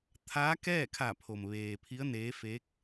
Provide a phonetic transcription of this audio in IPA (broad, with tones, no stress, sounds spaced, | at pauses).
t̪ʰ aː˧˥ k ɛː˥˨ kʰ a˧˩ pʰ o˩ m ʋ eː˩ pʰ i˧˥ ə̯ n eː˧˥ f e˧˥ k̚